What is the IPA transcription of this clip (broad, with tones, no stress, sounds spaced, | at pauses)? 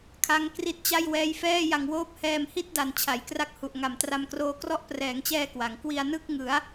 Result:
kʰ a˦˥ ŋ k r i˦˥ t̚ t͡ɕ a˥˩ j w ɛː˦˥ j f ɛː˥˩ j a˧ ŋ w oː˥˩ p̚ h ɛː˧ m h i˥˩ t̚ d a˨˩ n t͡ɕʰ a˩˦ j k r a˦˥ k̚ h u˨˩ ʔ ŋ a˨˩ m t r a˧ m k r oː˧ k r ɔ˥˩ ʔ p r ɛː˩˦ ŋ t͡ɕ ɛː˧ k w a˩˦ ŋ k w i˧ a̯ n ɯ˥˩ k̚ ŋ ɯ˩˦ a̯